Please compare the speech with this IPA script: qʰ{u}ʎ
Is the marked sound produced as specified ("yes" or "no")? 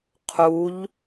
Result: yes